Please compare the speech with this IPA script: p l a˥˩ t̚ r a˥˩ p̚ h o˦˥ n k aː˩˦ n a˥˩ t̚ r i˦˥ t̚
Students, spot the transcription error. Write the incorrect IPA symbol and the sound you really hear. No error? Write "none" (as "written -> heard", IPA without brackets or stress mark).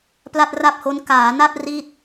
none